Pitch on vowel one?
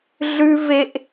high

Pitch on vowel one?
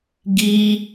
high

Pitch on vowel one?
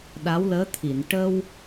rising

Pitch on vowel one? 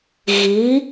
rising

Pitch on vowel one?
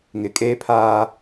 rising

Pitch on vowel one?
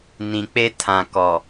low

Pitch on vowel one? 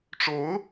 rising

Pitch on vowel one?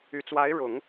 low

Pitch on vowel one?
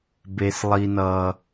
low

